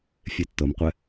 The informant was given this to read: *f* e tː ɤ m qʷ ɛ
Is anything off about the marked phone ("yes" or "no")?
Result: yes